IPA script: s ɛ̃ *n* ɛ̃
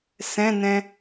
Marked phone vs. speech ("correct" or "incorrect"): correct